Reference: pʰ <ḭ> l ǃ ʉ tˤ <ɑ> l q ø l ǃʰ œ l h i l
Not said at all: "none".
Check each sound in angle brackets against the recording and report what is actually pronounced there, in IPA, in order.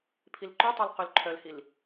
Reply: i, ɑ

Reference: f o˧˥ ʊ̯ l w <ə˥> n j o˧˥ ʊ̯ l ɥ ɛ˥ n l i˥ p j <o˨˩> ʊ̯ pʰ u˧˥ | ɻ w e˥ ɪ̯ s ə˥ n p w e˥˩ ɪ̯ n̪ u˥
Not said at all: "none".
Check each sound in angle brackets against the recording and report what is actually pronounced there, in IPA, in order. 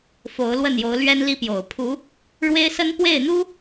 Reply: ə˥˩, o˨˩

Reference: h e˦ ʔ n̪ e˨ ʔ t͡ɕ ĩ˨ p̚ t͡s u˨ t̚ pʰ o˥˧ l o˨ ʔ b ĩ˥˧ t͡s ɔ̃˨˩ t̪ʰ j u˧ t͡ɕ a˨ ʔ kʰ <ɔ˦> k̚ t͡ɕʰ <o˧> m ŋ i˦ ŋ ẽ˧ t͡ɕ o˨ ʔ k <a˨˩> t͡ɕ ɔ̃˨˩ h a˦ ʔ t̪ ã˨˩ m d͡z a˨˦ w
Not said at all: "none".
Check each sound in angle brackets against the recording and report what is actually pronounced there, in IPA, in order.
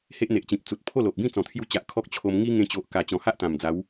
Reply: ɔ˦, o˧, a˨˩

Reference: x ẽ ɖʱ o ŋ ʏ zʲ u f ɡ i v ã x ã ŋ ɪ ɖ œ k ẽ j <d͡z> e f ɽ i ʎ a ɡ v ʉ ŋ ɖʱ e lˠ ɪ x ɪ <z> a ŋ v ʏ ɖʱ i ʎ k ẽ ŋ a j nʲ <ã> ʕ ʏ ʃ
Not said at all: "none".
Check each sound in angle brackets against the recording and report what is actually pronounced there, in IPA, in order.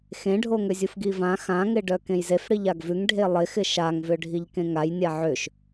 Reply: z, ʃ, a

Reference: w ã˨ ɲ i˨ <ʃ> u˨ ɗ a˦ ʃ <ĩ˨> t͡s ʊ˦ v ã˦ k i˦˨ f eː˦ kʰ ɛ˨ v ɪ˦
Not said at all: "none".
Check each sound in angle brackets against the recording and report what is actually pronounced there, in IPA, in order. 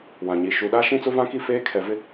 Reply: ʃ, ĩ˦

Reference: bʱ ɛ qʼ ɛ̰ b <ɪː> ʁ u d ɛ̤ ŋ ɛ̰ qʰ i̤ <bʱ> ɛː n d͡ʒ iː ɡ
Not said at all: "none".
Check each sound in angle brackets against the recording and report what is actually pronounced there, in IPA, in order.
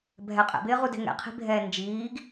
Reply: ɪː, bʱ

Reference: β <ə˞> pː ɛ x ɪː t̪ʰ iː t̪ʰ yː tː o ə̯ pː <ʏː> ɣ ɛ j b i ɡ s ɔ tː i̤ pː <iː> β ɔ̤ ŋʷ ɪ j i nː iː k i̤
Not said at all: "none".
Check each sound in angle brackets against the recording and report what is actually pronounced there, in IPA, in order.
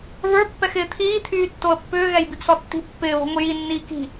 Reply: ə˞, ʏː, ɪː

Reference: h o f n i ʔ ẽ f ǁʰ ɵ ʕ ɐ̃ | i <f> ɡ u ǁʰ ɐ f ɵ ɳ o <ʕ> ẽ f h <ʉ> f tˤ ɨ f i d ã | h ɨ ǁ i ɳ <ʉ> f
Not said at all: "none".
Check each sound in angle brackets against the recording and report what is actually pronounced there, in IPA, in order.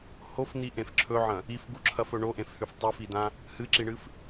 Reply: f, ʔ, ʉ, ɨ

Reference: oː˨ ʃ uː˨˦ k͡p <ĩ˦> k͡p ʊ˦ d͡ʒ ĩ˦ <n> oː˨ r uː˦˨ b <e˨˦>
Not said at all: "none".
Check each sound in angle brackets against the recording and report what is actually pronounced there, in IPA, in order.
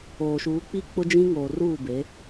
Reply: i˦, ŋ, e˨˦

